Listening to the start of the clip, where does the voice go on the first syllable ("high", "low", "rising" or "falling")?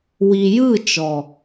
low